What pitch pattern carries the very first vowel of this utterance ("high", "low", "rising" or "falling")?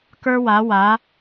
high